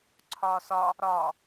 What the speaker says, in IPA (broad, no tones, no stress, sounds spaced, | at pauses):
ǀʰ ɒː s ɒ | ɾ ɒ